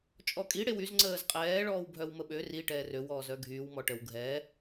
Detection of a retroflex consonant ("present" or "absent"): present